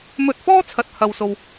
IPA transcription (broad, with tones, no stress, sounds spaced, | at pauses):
m ɵ˧ t̚ f ɔː˥ t͡sʰ ɐ˧ t̚ h ɐ˧ w s o˧ w